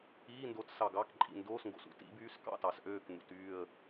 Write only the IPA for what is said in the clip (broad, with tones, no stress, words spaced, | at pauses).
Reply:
iː˧˥˧ndo˧˥t sɑ˨ɡɑ˧˥˧k ǃʼḭ˨ndoː˧˥˧sŋɡo̰˨s ṵ˧˥˧tḭ˧˥ byː˧˥˧skɑ̰˧˥˧tɑ˨sʔøː˥˨k n̪ṵ˨t yː˥˨ə̯